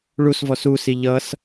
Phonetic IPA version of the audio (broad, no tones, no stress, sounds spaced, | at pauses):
ɭ u s v ɔ s u s i ʎ ʌ s